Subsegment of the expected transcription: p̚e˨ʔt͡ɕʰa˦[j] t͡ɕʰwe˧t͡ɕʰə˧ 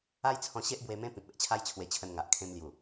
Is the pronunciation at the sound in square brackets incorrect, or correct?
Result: correct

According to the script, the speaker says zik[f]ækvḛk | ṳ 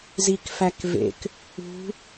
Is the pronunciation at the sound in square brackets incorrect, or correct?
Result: correct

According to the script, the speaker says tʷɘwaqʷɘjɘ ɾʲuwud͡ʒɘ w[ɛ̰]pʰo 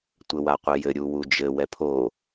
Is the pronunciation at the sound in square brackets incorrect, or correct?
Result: incorrect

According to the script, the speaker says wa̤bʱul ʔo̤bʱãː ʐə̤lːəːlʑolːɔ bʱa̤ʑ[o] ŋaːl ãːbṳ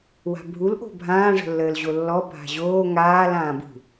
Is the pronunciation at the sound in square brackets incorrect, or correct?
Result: incorrect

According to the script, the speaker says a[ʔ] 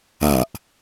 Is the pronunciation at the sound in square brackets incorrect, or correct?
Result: correct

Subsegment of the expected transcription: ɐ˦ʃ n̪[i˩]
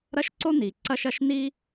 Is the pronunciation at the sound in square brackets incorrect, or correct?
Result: incorrect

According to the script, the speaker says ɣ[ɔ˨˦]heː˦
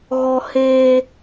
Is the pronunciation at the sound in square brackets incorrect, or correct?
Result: incorrect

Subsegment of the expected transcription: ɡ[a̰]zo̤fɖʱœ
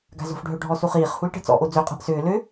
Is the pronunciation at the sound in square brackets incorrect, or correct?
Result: incorrect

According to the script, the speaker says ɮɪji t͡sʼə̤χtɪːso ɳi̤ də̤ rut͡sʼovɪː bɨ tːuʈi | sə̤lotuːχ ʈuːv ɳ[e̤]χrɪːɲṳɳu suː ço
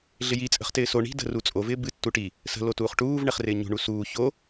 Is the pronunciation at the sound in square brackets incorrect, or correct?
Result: incorrect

